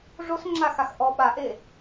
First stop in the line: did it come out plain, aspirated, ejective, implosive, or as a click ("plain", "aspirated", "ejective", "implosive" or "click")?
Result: click